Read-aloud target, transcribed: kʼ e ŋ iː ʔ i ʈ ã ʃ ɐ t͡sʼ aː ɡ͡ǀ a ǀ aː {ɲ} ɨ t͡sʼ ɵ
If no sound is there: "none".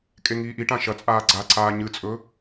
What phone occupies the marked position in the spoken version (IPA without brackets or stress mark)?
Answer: ɲ